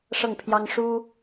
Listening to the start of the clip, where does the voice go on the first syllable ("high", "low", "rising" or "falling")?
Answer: falling